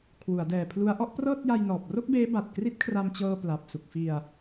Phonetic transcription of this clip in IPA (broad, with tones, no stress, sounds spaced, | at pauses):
kʰ w u˩˦ a̯ d ɛː˨˩ pʰ l u˦˥ a̯ ʔ ɔ˦˥ ʔ p r ɤː˥˩ t̚ j a˧ j n ɔː˨˩ p̚ r o˥˩ k̚ b eː˦˥ b a˨˩ t̚ k r i˦˥ t̚ kʰ r a˧ m t͡ɕ ɤː˧ p l a˨˩ p̚ s u˨˩ k̚ f i˧ a̯